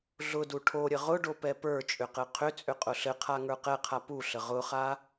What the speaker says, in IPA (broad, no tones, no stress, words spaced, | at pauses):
ɮʊdu ʈʰoɾʲə ʁʊɖopɛ pə˞t͡ʃʼʏqɘ qʰʏt͡sʼʏqʼʊ ɬɘqʰaŋə˞ qɛqʰa puɬə ʁʊχa